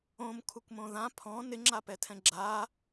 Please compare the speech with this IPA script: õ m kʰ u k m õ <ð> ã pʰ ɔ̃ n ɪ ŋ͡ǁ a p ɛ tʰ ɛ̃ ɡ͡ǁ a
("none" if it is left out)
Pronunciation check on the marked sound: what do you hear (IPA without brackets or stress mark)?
ð